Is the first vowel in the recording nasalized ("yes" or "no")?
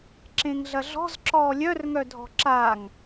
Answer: yes